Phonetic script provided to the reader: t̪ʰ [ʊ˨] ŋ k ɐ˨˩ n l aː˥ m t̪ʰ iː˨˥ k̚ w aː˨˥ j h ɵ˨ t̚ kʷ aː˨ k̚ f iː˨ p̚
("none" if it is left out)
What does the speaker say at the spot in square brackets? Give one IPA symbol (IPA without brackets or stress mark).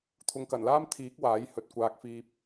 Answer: ʊ˨